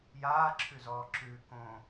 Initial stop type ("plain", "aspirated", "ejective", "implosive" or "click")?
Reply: click